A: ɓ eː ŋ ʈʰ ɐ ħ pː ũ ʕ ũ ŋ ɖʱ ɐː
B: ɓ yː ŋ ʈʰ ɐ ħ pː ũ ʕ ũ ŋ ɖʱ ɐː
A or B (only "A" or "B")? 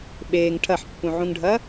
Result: A